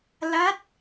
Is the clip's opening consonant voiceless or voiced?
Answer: voiced